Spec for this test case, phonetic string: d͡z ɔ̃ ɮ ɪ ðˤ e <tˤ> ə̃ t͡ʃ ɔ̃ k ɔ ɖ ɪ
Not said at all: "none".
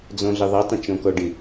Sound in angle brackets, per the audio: tˤ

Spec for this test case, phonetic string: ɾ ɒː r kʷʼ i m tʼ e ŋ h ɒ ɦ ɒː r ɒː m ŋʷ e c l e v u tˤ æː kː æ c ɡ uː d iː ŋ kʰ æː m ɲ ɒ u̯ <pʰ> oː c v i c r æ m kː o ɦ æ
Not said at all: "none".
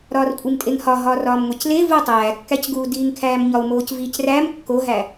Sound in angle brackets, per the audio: m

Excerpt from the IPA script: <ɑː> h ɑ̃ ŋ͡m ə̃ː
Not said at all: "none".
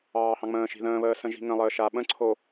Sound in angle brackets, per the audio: ɑː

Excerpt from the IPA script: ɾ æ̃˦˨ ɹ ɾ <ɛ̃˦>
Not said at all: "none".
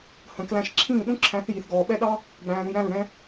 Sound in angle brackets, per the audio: ɛ̃˦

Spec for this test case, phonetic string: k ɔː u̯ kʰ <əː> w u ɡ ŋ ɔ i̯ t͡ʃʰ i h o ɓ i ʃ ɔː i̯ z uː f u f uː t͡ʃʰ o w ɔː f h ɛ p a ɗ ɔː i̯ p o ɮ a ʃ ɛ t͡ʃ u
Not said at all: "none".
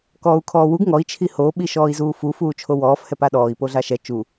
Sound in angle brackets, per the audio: ɔː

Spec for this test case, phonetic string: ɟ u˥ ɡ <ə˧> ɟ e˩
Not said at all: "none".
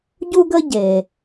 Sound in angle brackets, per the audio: ə˥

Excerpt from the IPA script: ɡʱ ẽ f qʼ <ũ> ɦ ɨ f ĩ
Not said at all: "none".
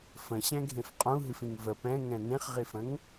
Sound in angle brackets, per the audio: ũ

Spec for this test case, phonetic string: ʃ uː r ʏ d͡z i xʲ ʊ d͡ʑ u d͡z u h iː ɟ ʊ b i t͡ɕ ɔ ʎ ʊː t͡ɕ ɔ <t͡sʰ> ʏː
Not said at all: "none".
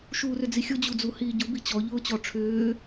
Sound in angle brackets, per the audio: ʈ͡ʂʰ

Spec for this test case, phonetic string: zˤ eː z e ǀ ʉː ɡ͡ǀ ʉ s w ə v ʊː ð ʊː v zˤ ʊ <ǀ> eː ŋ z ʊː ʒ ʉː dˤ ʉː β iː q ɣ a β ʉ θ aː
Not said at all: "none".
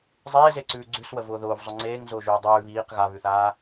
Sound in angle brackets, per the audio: ŋ͡ǀ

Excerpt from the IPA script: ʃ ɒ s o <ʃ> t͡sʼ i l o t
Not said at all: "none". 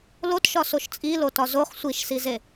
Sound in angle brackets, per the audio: ʃ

